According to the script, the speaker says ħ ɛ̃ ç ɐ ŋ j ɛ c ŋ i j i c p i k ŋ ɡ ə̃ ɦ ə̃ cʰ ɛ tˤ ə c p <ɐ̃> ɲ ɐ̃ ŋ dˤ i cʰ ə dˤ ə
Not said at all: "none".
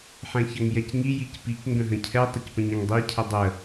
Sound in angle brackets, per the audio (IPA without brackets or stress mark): ə̃